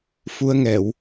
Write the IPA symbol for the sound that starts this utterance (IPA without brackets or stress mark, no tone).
f